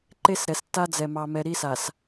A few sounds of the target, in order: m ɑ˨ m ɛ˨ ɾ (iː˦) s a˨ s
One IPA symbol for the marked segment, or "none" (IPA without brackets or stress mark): i˦